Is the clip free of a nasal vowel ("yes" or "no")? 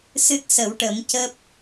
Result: yes